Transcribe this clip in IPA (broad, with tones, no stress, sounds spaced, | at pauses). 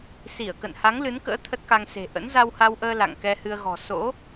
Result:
s i˧˩ ə̯ k ə̰˧˨ n h a˨˦ ŋ l ɨ˨˦ n k ə̰ː˧˥ t̪ʰ ə˦˥ t̚ k a˧ ŋ s e̤˨˩ ʔ ə̰˧˥ n z a˧ w h a˧ w ʔ əː˧ l a̰˧˨ ŋ k ɛ˧ h ɨ˧ ə̯ ɣ ɔ̤˨˩ s o̰˧˥